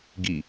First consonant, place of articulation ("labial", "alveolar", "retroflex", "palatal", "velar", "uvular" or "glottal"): velar